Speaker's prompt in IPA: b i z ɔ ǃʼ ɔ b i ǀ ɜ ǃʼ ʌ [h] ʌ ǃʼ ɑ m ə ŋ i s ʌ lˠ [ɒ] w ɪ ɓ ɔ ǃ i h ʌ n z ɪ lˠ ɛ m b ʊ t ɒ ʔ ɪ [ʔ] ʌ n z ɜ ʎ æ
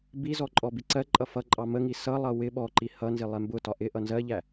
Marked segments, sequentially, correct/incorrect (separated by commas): incorrect, incorrect, correct